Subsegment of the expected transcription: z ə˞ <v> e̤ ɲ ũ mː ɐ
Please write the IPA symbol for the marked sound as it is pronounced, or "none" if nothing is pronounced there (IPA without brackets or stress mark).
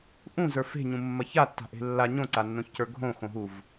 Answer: f